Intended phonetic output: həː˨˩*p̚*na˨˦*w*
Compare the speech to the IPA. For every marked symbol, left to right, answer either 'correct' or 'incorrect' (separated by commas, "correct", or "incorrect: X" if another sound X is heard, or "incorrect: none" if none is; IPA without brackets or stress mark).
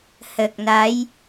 incorrect: k̚, incorrect: j